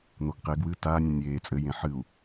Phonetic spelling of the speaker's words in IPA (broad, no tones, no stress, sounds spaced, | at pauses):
n̪ o ɡ q e ɡ w ɨ t a nʲ ẽ nʲ eː t͡sʼ ɘ j ẽ ħ ɨ u̯